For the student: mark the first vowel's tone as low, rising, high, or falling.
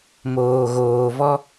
low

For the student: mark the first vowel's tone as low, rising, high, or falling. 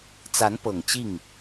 rising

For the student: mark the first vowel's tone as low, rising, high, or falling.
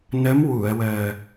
rising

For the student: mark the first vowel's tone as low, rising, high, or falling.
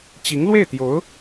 rising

